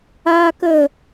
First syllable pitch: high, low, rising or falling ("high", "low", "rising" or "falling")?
high